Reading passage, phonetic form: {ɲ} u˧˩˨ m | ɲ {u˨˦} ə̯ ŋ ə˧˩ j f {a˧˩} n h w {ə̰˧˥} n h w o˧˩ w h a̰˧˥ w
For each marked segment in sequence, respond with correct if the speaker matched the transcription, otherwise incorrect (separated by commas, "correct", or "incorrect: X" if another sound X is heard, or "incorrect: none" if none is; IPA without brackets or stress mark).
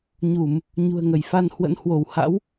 correct, incorrect: ṳ˨˩, incorrect: a˧, correct